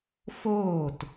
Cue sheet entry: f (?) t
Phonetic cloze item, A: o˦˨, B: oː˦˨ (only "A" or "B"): B